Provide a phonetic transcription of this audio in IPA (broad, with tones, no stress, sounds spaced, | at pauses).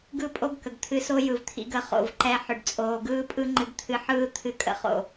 ɡ ɯ˦˨ pʼ o˦ ɡ k ə˨ ɡ t̪ʰ ɨ˧ s o˦ j ɯ˨ v t̪ʰ ḭ˧ ɡ ə˨ χ o̰˨ v ǃ ɛ˧ ħ ʏ˨ ɖ t͡sʼ oː˨ ɡ ɯː˦ pʼ ɯ˦ ŋ͡ǃ ɨ˧ ɡ t̪ʰ ɨ˧ ħ ɯː˦ t̪ʰ ɨ˧ kʼ ə̰˨ χ o̰˨